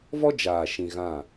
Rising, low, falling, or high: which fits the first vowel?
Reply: high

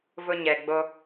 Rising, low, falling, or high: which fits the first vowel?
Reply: high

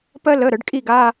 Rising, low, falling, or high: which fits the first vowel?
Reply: high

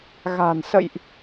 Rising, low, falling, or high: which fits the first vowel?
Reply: low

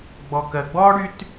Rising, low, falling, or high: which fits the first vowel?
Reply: low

